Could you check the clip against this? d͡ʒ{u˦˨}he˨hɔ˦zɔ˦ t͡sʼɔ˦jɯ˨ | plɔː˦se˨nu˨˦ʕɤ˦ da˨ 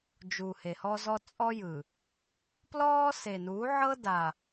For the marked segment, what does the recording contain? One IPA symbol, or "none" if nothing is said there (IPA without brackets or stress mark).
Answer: u˨